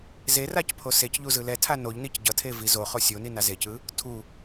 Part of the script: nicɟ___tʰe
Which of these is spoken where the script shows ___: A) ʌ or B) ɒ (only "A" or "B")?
A